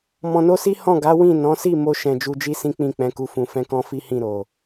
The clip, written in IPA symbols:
mɔ̃˧no˦si˦ hɔ̃˦˨ɡa˨˦ wĩ˦˨ nɔ̃˨˦si˦˨mo˧ ʃɛ̃˧d͡ʒu˧d͡ʒi˦ sĩ˦k͡pĩ˦˨k͡pɛ̃˨˦ku˧ fũ˧fɛ̃˦kɔ̃˦ fi˦hĩ˦˨ ɾo˨

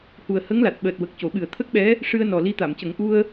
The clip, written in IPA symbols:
hu˨˩ə̯hə˧˥ŋla˨˩t̚ ɓəː˨˩t̚wə˨˩k̚ co˨˩˦ ɓɨ˨˩ə̯t̪ʰə˦˥k̚ɓɛ˧˥ | ʂɨ˧ə̯nɔ˨˩li˧˥ t̪a˨˩˨mcə˨˩˦ŋ ʔu˧ə̯

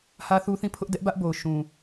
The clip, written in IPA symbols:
hä˦θu˦θĩ˦˨ pʰʊ˦ʔ dɛ˦ʔ bä˦ʔbo˨ʊ̯ ʃũ˨

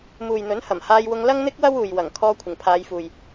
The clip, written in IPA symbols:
muː˨jn̪ɵ˨˥n hɐ˨˩mhaː˧jwʊ˧ŋ lɐ˥ŋn̪ɪ˥k̚ wɐ˥wuː˨jwɐ˨˩ŋ kʰɔː˧ kʷʰɪ˨˩ŋpʰaː˨˧jfuː˨j

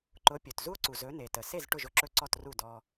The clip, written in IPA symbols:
ǃʊ˩˥pʲɵ˩t zu˥o̯ǀu˩zɵ˩˥ ne˩tə˩se˥˩z ʈʊ˥˩ʒʊ˧ǁɵ˥˩ǀɔ˥˩t ru˥˩dɔ˧

